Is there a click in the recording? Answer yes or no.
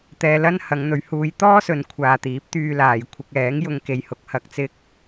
no